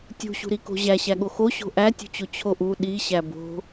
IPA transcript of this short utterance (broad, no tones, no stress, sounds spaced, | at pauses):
tʲ ṳ ɕ ṳ ɾ i k o̤ ʑ æ ɕ æ ɠ o x o ɕ o̤ ʔ æ tʲ ṳ t͡ɕ o t͡ɕʰ o ʔ u ɗ i ɕ æ b o̤